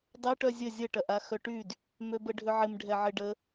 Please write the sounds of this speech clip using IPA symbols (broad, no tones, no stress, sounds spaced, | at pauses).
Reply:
dˤ ɐ ʈ œ zʲ ə zʲ ə ʈ ɐ ʔ a x œ ʈ y d | m ø b ə ɖʱ ʏ ʕ ɪ m ɖʱ ɛ ʕ ɪ ɖ ə